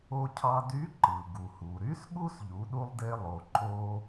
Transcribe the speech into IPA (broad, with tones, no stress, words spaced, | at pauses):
o˧cʰɑ˧dy˧˥ ǃɯ˩ ɡu˩hu˩ɾy˧˥s ɠu˥sʎu˩˧ɗu˧lˠde˧ lˠo˩ ǃo˧